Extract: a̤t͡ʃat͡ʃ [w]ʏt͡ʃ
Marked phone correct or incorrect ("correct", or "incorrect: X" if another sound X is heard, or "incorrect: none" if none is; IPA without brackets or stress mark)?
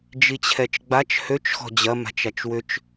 correct